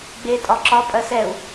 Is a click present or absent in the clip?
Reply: present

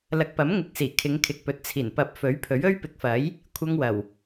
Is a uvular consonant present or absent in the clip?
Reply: absent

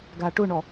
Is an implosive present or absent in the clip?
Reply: absent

